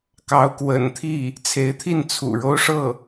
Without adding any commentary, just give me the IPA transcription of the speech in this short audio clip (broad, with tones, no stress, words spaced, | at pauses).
kɑ˧˥ʊ̯ kwə̰˨˩nt̪ʰi˥˩ | t͡sʰe˧˥ɪ̯t̪ʰi˥˩n t͡sʰṵ˨˩ɻo˥ʊ̯ʂɤ˥˩